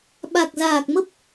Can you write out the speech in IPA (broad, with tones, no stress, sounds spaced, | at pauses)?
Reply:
ɓ a˨˩ k̚ z aː˨˩ k̚ m ə˦˥ p̚